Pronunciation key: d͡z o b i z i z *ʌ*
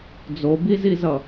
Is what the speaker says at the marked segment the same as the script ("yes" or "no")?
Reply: yes